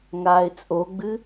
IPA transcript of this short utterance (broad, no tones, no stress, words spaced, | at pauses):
ŋaːɪ̯t͡sʼoɡ͡bɨ